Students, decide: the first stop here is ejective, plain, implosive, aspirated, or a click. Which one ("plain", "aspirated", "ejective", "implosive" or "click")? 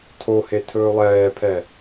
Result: aspirated